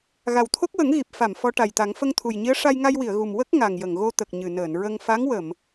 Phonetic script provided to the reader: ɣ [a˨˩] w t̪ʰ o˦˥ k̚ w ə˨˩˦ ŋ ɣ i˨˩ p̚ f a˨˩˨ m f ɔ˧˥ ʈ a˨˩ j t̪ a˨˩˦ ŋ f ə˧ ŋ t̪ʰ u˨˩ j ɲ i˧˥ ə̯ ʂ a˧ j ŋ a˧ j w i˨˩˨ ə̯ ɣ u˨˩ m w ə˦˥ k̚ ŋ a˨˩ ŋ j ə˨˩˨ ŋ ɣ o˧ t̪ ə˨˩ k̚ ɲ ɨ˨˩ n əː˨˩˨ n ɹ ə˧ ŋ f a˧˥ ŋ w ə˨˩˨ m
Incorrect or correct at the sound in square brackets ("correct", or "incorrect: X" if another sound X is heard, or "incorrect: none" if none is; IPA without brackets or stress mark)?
correct